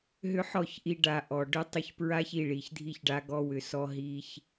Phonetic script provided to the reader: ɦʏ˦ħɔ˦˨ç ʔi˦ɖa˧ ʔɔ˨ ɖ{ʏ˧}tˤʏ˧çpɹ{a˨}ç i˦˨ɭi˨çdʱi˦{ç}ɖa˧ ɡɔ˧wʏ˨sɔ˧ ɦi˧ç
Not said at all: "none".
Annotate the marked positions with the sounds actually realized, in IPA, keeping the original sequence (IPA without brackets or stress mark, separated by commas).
ʏ˦, a˦, ç